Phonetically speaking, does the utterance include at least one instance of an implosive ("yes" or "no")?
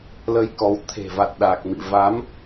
yes